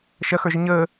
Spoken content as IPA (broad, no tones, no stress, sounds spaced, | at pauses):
ʃ ɐ x ə˞ ʒ ə ɲ əː